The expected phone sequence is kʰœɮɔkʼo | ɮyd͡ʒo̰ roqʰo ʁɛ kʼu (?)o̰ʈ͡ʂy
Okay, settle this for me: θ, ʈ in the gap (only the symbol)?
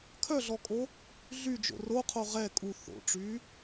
θ